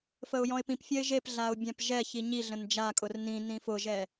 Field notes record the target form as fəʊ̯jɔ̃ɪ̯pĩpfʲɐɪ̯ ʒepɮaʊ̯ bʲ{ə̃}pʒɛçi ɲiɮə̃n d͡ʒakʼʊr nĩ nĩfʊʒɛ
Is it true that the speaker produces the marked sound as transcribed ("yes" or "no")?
no